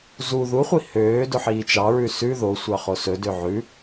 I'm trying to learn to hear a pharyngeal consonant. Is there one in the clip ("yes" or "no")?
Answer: yes